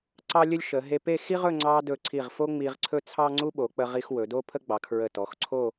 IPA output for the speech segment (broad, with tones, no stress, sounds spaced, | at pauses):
ǀ ɑ˥ lʲ ɵ˥ lʲ ʃ ə˩˧ ɦ e˧ p e˥˧ x i˥ ʁ ɵ˥˧ ŋ͡ǀ ɑ˧ d ɵ˧˩ ǀʰ i˧˩ ʁ f o˥ ŋ͡m i˧ ʁ ǀʰ ɵ˥ t͡sʰ ɑ˥ ŋ͡ǀ u˥ ɓ o˩˧ k͡p ə˧ ʁ i˧ x w ɵ˩˧ d o˥ pʰ ə˥ ɡ͡b ɑ˩˧ kʰ ɹ ə˧˩ t ɔ˩˧ x ǀʰ o˥˧